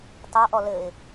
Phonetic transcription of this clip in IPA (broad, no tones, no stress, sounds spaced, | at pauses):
t ɑ ʔ ɔ l ɘ ɪ̯